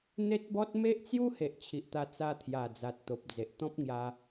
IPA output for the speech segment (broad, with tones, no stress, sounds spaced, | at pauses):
n̪ e˦ t̚ b ɔ˦ t̚ m e˦ ʔ t͡s j u˦ h e˨ ʔ t͡ɕʰ i˨ ʔ t̪ a˧ t͡s a˧ t̪ʰ j a˨˩ d͡z a˨ t̚ t̪ o˨ p̚ d͡z e˨ ʔ t̪ ɔ̃˦ p̚ ŋ j a˧